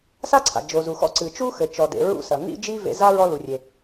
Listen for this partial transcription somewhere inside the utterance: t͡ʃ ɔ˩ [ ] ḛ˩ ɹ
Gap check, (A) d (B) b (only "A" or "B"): A